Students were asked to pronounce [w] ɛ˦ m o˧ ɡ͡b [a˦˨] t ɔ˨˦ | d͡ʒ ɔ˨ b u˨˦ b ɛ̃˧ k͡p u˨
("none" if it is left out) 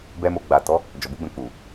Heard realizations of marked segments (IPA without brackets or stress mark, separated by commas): b, a˨